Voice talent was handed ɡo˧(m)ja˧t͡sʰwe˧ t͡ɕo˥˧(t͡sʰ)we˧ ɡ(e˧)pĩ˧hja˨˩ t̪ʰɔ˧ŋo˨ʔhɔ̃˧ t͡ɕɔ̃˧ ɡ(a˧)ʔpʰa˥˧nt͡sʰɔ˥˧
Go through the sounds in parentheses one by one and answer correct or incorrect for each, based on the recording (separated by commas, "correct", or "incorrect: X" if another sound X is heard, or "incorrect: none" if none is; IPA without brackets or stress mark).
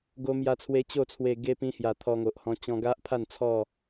correct, correct, correct, incorrect: a˦